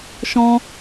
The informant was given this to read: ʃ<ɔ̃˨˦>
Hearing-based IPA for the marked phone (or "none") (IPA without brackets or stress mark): ɔ̃˦